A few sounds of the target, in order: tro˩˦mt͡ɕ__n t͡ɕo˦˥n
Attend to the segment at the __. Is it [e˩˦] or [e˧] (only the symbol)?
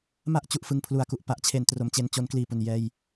e˧